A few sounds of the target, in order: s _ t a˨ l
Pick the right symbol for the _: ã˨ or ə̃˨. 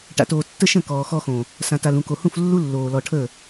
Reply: ã˨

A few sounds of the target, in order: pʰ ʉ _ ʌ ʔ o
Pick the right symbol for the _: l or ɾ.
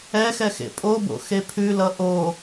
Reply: l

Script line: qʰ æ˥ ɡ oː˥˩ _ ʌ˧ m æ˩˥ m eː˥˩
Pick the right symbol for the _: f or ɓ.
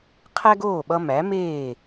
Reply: ɓ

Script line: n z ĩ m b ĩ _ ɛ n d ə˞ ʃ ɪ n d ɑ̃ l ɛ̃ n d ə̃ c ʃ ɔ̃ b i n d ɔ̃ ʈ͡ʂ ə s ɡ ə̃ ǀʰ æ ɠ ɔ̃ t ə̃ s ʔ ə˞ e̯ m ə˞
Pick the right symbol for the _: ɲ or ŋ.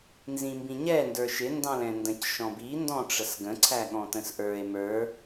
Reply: ɲ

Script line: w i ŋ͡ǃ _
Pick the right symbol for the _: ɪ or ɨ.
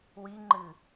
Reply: ɨ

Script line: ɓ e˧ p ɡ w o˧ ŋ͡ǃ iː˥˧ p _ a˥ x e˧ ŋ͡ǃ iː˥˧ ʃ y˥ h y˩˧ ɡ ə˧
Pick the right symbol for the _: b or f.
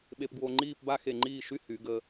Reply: b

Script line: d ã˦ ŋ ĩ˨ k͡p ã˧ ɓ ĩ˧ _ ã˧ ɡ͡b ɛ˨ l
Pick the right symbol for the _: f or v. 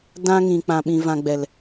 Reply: v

